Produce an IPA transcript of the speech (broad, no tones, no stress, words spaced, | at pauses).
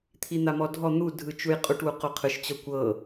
t̪ʰin̪amɔdʱɔ n̪u dʱɯt͡ʃujqʼuʈ wuqoqʰɯʃ t͡ɕɔkʷɤ